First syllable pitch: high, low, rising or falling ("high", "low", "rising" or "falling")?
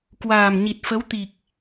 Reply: low